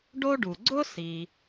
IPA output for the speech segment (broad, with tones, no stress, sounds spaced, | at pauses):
ɖ o˥ ɖ u˩ ɡ͡ǀ ʊ˥ s i˩